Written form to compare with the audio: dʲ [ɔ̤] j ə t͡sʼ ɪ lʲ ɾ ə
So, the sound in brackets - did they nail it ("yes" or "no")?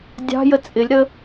no